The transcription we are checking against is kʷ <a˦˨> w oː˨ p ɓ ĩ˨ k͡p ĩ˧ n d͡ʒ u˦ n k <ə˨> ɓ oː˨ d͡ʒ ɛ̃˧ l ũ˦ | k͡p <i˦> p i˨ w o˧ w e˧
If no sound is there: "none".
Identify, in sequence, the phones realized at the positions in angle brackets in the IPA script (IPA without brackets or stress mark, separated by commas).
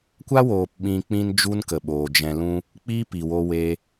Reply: a˦, ə˨, i˦